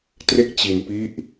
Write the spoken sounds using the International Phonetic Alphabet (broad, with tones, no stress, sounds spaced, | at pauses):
t r e˥˩ k̚ t͡ɕ i˧ n p i˦˥ ʔ